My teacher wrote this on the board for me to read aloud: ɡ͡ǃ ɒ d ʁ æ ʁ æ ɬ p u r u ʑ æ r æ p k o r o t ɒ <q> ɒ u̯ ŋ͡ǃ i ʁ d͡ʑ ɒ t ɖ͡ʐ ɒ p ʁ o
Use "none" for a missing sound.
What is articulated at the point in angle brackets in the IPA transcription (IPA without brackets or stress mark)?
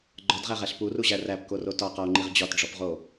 q